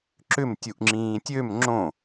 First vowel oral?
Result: yes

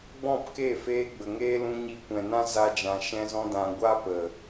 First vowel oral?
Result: no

